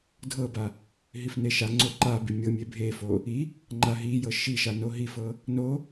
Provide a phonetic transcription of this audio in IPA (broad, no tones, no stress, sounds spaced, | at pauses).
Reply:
dʱ ɤ b a | ɦ i f n e ʃ a ŋ͡ǀ o ǃ a b i mʲ ɤ mʲ e bʱ e f o | i | ŋ͡ǃ a ɦ i j ɤ ʃ i ʃ a n o ɦ i f ɤ | n o